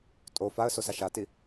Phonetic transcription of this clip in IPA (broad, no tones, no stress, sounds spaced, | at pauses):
tʼ o f a ə̯ s o s a ʃ a t i